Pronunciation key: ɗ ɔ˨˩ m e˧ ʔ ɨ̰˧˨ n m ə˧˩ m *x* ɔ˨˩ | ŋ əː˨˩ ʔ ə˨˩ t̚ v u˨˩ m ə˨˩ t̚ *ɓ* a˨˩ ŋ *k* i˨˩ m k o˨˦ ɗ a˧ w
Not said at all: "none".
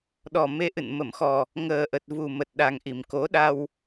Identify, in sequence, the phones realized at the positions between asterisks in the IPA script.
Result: x, ɗ, ʔ

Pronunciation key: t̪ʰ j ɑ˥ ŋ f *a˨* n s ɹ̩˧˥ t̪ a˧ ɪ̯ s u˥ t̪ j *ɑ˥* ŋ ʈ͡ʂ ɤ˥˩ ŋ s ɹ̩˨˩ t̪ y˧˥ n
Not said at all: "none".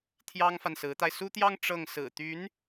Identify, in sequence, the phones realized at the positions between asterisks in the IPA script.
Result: a˨, ɑ˥

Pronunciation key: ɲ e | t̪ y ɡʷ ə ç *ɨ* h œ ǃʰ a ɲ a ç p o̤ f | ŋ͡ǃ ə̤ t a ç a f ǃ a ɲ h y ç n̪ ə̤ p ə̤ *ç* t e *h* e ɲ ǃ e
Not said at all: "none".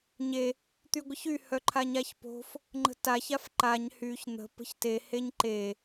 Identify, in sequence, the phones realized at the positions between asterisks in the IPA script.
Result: y, ç, h

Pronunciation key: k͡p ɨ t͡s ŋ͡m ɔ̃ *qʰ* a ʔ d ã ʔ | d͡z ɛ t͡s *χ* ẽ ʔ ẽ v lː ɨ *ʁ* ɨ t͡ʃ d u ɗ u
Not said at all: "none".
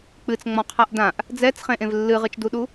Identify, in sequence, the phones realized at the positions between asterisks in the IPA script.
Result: qʰ, χ, ʁ

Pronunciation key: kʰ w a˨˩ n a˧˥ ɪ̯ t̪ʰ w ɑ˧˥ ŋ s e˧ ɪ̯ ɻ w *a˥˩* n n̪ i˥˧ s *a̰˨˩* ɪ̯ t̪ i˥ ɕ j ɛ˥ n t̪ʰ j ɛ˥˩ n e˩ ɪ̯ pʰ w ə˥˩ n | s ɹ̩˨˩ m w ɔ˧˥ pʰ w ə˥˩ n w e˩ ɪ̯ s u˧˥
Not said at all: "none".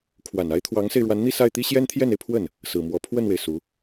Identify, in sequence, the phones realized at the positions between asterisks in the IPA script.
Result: a˧˥, a˥˩

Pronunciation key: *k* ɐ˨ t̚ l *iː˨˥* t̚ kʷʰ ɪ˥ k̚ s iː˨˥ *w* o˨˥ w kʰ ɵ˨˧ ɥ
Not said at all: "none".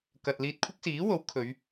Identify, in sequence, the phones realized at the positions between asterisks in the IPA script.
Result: k, iː˧, w

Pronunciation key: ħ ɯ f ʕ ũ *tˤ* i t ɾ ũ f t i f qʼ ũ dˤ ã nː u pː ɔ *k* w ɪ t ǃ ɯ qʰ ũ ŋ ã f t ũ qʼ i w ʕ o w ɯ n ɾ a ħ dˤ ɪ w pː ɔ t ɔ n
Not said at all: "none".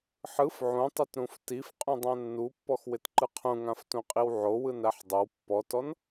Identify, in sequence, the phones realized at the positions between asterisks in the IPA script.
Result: tˤ, x

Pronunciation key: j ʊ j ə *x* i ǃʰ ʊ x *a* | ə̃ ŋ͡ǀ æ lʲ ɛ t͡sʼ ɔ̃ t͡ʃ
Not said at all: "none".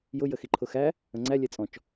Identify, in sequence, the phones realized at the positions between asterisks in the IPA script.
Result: x, æ

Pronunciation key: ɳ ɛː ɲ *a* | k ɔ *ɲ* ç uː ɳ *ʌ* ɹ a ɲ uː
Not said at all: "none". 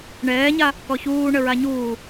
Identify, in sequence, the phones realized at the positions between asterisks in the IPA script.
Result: a, none, ə

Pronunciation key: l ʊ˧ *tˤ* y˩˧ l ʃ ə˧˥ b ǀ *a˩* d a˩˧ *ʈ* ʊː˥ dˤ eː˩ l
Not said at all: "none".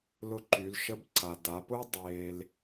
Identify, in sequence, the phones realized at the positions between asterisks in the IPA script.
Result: ǃ, a˩, p

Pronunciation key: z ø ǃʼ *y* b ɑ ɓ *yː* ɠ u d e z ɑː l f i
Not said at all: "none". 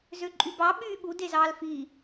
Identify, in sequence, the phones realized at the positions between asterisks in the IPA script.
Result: y, yː

